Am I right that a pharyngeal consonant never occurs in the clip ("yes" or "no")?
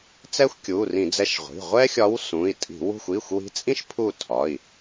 yes